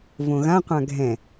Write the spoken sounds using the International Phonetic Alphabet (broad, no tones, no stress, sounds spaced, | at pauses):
v õ ɣ ã qʷ ã ɡʱ ɛ̃